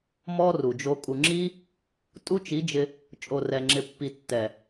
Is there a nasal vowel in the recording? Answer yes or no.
no